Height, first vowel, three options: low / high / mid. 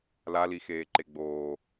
low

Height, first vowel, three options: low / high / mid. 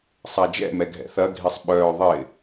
low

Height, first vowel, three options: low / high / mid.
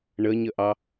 mid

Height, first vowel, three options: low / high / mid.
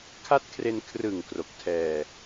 low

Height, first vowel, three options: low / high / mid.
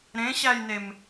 mid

